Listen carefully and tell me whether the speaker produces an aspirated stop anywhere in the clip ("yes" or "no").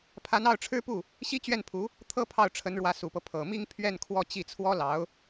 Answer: yes